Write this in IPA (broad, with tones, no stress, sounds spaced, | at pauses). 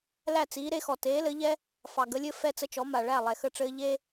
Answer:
l æ˥˩ t͡s iː˩˥ ɾ e˧ x ɔ˩ t eː˩˥ l ɘ˩˥ ʎ ɛ˥ | f ɑ˩ ɡ ə˩˥ lʲ ɘ˥ f ɛ˥˩ t͡s ə˥˩ t͡ʃ ɔ˩˥ m a˩ ɭ æ˥˩ lˠ ɛ˩ x ə˥˩ ʈ͡ʂ ɘː˥ ʎ e˥